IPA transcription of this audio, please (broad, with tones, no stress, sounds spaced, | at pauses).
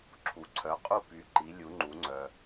ǁʰ u˨ ǀʰ œ˨˥ qʼ u˥˨ p y˨˥ ǃ i˨˥ lʲ u˨˥ ŋ͡ǃ u˨˥ ŋ͡ǀ œ˨